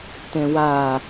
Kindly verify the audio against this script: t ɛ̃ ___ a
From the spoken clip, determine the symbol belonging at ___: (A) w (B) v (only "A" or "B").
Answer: A